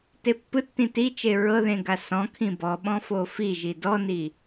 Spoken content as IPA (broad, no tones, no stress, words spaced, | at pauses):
tepːɯtːĩ tit͡ʃe ɹɤðẽ ɡasɔ̃kʰĩ bɔɓɔ̃ fofiʒi dɔni